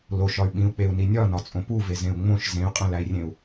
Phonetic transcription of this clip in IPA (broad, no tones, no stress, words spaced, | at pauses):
loʃɒy̯ ɓĩu̯k͡peu̯ni nʲɒnɒt͡sʼõ puvezẽu̯ ŋ͡mõʃ zẽy̯qʼẽlæi̯rʲẽu̯